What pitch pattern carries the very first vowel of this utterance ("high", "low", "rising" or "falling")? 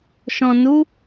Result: low